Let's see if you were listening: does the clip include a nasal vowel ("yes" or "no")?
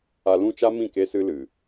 yes